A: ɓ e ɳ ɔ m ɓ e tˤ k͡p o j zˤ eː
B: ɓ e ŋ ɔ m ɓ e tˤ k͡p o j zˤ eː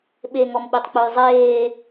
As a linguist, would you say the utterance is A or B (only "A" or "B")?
B